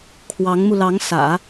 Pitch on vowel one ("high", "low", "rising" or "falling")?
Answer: rising